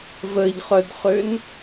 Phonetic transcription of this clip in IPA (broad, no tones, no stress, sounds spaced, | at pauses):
v ə ʎ χ œ d χ ø n